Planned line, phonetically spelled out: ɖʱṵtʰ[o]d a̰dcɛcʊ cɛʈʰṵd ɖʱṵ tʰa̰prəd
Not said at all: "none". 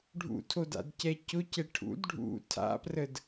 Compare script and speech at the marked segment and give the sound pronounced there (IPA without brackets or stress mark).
o